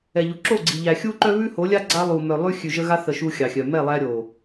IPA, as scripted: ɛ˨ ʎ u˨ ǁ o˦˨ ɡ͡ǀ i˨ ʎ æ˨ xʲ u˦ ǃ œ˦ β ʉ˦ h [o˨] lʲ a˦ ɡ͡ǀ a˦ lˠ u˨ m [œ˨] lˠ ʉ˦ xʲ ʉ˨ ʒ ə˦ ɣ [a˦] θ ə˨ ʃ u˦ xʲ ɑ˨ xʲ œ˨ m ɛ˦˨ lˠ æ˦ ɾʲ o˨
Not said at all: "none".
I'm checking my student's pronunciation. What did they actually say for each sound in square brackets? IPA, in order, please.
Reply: o˨˦, œ˨, a˦

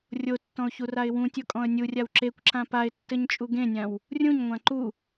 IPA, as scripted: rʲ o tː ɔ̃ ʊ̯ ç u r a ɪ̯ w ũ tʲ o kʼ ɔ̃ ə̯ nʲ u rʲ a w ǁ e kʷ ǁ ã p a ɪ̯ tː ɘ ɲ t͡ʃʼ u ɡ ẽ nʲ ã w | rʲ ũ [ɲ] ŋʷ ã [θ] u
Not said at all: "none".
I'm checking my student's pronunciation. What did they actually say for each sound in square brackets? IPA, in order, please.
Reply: ɲ, ǃ

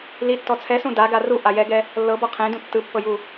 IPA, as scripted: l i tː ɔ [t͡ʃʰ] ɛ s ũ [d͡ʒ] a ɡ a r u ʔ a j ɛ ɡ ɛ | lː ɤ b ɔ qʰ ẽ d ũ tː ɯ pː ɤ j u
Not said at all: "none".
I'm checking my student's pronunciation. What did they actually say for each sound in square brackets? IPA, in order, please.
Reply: t͡sʰ, d

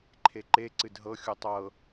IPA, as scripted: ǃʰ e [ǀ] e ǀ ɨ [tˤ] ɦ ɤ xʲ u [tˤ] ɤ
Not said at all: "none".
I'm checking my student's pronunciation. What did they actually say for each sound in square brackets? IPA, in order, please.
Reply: ǃ, d, tˤ

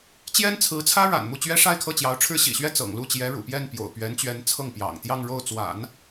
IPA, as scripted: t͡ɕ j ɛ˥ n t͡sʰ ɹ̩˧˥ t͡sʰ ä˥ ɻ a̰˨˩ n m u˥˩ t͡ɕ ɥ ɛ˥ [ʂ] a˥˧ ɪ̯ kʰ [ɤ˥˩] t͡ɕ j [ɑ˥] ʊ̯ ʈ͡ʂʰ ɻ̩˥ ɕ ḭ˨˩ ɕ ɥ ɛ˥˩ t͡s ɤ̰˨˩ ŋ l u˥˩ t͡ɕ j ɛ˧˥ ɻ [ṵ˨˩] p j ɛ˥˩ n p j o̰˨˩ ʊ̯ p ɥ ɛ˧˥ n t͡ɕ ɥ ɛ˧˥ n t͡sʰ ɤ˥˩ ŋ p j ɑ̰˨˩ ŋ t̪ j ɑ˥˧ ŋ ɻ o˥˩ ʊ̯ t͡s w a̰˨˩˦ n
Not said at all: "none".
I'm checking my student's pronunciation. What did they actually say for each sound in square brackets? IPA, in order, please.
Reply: ʂ, ɤ˥˩, ɑ˧˥, ṵ˨˩

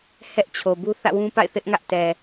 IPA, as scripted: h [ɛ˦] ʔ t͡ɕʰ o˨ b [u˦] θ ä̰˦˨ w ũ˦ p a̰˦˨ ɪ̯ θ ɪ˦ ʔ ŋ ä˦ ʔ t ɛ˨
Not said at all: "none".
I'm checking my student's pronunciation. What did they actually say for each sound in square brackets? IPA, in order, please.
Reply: ɛ˦, u˦

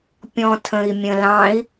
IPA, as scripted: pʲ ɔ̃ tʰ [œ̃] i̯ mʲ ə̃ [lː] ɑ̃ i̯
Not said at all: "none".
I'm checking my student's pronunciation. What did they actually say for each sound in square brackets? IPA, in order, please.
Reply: ə̃, l

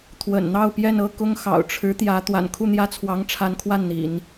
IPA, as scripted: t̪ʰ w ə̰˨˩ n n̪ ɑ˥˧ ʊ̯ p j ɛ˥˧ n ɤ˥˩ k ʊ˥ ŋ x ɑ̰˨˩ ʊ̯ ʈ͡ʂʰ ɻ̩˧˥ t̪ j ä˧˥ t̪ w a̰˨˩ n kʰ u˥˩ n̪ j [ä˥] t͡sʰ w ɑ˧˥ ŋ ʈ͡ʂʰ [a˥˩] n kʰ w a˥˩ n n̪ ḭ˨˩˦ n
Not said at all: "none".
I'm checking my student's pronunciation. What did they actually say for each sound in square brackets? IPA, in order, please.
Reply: ä˥, a˧˥

